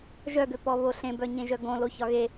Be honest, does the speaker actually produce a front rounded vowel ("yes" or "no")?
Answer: yes